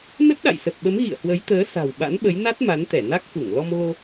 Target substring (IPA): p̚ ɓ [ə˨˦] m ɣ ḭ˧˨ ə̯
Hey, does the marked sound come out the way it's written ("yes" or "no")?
yes